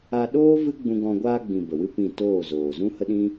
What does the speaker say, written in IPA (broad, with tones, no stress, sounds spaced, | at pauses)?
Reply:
a˧ ɗ oː˦ v ɨ˦ ɡ͡b ũ˧ ɡ ɔ̃˧ ɡʷ aː˧ ɡ͡b ĩ˨ b ə˨ w ɨ˦ p ĩ˦˨ t oː˦˨ z oː˨ z ũ˦ h ə˦ ɗ ĩ˦